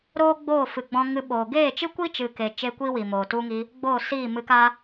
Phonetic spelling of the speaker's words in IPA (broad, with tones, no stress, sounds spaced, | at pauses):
ɾ oː˦ ɡ͡b oː˦˨ f ɨ˨ ɡ͡b ɔ̃˧ ŋ ɨ˧ ɓ oː˨ ɡ eː˦˨ t͡ʃ ɨ˦ kʷ i˦ t͡ʃ ɨ˨ k e˨ t͡ʃ e˦ kʷ i˦ w i˨ m oː˨ t u˧ ŋ i˧ | ɡ͡b oː˦˨ s iː˦˨ m ɨ˧ k a˦